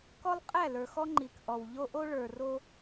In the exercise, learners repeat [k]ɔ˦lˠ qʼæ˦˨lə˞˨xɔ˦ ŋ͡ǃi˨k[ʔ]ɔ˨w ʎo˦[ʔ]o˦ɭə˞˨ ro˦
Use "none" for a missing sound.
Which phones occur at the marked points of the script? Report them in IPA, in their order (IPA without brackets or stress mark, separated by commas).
k, ʔ, ʔ